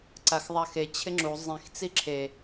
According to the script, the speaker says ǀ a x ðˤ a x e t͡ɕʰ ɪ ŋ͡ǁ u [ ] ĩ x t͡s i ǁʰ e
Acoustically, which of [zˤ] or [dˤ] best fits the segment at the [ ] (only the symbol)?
zˤ